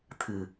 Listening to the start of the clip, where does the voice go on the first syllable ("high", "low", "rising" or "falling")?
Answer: low